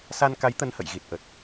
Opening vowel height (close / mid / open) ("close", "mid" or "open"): open